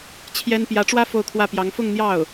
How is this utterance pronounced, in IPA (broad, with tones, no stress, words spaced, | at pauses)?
t͡ɕʰjɛ˥n pjä˧˥ʈ͡ʂwä˥ fo˥˧ʊ̯kʰwä˥˩pjɑ˧˥ŋ fʊ˥˧ŋn̪jɑ˥˩ʊ̯